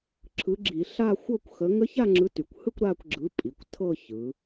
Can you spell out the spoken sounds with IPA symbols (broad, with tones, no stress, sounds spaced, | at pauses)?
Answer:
ǁʰ ɯ˨˥ ɡ͡ǁ i˧˩˧ ɬ a˥˧ xʷ ɤ˥˧ kʷ x ə˨˥ ŋ ə˦˥ ç a˥˧ ŋ͡ǁ ɯ˨˥ t y˩˧ kʷ h ɯ˥˧ kʷ ɾ a˥˧ kʷ ɡ͡ǁ ɯ˨˥ pʼ i˩˧ kʷ tʰ ɤ˥˧ ç ɯ˩˧